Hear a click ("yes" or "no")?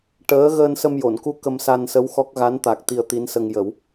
no